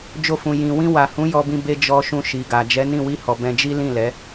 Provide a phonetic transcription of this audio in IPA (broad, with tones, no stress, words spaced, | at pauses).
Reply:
d͡ʒo˧fũ˨ jĩ˨ wĩ˧wa˨hũ˨˦ jɔ˧bĩ˧ be˧ d͡ʒɔ˧ʃũ˧ ʃi˨ɡa˨ d͡ʒɛ˨˦nĩ˦˨wi˧hɔ˨ bɛ̃˧d͡ʒi˦ lĩ˦˨lɛ˨˦